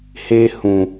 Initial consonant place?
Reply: glottal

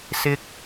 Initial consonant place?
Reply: alveolar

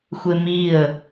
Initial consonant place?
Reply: velar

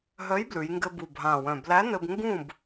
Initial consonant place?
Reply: glottal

